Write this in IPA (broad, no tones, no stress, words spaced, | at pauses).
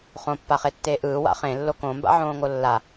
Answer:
χõpːaχetːeː ʔɯːwa̰ χẽlːo kõmba̰ʕõːŋo lːa